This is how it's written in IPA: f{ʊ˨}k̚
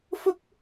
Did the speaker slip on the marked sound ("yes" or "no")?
yes